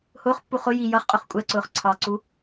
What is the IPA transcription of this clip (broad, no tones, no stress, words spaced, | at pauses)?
hʊːχpːu χʊ ji jʌχqʼʊχ kʷʼɛǀʊːχ ǀʰɑǀu